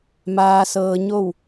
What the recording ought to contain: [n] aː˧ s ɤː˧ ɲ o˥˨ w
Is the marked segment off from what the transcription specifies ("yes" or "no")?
yes